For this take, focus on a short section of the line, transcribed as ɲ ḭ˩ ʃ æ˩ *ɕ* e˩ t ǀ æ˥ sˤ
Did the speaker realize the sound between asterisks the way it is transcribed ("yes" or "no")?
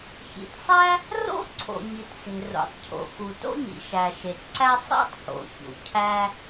no